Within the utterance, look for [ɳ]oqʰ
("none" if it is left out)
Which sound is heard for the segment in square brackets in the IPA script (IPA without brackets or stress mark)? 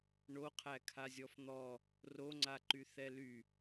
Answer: ɳ